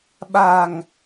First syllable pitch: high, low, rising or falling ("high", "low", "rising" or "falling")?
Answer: low